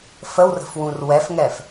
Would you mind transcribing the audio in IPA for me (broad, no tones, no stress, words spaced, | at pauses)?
fəwrə̤fwũr wɛfŋɛf